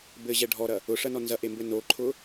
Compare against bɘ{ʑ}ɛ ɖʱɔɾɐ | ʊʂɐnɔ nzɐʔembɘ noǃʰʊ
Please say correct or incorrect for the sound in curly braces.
correct